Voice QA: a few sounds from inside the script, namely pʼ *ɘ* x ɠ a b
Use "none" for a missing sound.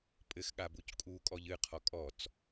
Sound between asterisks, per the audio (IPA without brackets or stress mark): ɘ